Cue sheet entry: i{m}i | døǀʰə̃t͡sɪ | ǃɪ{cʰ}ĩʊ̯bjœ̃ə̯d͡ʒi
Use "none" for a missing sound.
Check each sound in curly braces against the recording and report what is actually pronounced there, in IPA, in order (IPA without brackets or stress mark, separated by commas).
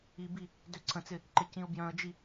b, c